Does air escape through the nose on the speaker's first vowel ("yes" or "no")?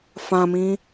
yes